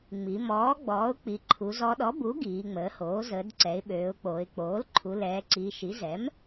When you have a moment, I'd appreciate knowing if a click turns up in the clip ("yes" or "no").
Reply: yes